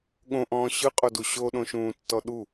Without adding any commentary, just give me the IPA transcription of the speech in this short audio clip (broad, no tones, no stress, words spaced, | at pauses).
ɠõʔɔ̃ː ɕɯqʼodu ɕoɗõʃũːtːɔ ɗu